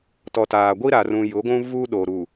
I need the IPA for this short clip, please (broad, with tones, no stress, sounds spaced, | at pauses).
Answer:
t ɔ˨ t aː˨ ɡʷ i˦ ɾ a˨ r ũ˨ j ʊ˨˦ ɡʷ ũ˦ v u˦ ɗ o˨ ɾ u˨